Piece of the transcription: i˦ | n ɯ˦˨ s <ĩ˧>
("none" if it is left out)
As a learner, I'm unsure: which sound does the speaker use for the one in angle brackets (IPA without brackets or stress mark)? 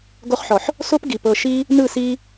i˧